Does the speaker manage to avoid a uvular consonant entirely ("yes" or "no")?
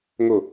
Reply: yes